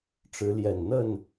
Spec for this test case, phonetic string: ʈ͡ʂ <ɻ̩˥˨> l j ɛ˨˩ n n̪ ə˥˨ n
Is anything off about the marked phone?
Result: yes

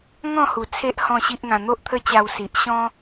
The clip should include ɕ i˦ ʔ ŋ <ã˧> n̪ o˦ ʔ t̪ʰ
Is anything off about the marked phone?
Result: no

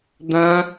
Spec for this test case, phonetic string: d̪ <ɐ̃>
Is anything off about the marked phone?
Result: no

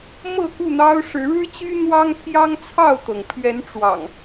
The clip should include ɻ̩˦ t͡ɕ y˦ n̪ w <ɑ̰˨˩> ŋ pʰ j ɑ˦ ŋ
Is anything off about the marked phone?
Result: yes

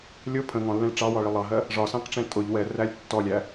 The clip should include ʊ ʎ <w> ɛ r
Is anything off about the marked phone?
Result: no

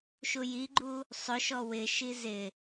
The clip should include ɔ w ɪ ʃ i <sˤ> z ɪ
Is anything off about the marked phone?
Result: yes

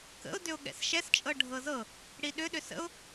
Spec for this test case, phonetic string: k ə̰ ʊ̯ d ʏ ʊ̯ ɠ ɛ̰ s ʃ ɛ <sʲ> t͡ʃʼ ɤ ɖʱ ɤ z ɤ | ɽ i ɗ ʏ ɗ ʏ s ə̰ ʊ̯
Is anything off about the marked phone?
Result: yes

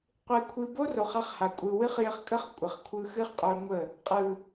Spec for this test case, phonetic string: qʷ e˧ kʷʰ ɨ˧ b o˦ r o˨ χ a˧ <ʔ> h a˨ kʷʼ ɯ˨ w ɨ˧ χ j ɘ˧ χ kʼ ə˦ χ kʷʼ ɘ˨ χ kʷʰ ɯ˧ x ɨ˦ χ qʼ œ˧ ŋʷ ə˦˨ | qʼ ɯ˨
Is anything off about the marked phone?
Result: yes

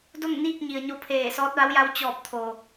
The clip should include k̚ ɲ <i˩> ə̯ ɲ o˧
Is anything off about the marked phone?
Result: no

